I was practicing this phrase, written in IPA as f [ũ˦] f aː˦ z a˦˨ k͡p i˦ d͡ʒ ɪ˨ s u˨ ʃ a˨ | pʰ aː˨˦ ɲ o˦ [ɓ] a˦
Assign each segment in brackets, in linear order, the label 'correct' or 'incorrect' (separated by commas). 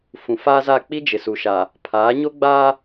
incorrect, incorrect